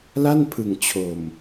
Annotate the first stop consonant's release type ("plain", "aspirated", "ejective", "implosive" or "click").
aspirated